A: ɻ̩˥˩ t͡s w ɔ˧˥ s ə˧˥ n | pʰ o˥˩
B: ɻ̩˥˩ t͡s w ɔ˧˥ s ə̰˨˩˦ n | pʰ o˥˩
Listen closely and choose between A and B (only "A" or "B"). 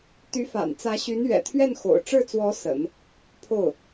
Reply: B